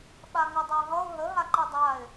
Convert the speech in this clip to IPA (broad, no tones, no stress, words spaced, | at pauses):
ɓaŋʌdˤaɦʌʊ̯ ɦə ɦaǃidˤaɪ̯